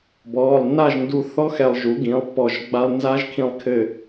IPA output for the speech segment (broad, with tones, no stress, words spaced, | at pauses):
bɔː˩˧˩lˠnːa˥˨ʒndu˧θɔ˦˥ xɛ˧lˠʒu˩˥ɡĩ˩˥lˠ pːɔ˧˩ʒ ɡ͡ba˧lˠnza˦˥ʒkʰĩ˧lˠkʰɘ˧˩